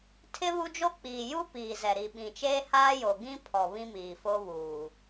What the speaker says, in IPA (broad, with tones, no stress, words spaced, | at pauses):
tʰɪ˦βu˦d͡ʒo˦k͡piː˨ ju˦ piː˨ zɛ˨ɾi˨ɓĩ˨t͡ʃeː˦ haː˦jo˨ ɡĩ˦pʰɔ˨ βĩ˦miː˨ fo˦βuː˨